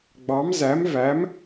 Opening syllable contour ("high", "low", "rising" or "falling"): rising